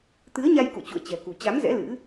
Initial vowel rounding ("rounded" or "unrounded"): unrounded